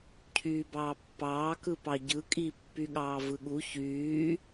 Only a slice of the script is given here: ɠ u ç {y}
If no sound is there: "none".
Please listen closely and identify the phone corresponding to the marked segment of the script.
yː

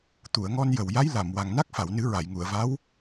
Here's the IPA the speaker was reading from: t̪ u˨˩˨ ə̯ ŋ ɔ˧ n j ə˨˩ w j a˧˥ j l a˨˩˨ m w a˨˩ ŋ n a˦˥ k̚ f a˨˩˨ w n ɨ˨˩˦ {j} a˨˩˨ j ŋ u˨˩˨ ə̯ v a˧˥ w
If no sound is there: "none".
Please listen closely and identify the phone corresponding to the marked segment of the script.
ɹ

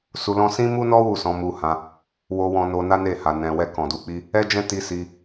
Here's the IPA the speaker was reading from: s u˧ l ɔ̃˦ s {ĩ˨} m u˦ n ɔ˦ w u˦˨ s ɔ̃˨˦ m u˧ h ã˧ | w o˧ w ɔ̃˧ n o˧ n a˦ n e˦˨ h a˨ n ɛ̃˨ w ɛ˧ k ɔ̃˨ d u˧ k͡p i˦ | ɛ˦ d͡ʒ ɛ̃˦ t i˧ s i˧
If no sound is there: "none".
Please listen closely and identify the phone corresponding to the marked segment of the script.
ĩ˦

